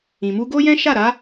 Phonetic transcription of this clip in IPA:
ĩ˨mu˧ɡo˦jɛ̃˦ ʃa˦˨ɾa˨˦

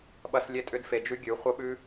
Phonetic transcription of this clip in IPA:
ɓɐ˦slʲe˦tʼʏ˦d fe˧d͡ʒʉ˦ ɡʲʉ˨˦ χʷɐ˦ɓʉ˦

